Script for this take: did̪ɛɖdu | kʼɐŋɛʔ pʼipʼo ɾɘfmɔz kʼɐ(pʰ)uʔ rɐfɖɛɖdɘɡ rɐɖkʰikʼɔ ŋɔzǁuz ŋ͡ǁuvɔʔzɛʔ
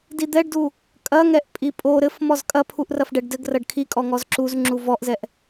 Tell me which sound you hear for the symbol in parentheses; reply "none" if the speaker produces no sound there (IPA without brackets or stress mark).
pʰ